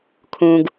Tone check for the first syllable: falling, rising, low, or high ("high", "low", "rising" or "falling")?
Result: low